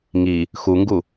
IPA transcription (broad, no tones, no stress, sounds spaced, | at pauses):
ŋ i | x u ŋ ɡ u